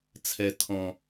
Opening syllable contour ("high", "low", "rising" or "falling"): low